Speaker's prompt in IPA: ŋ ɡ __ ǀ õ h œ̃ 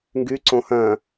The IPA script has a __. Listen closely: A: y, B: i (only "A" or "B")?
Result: A